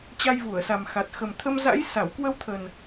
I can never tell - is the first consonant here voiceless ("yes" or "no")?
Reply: yes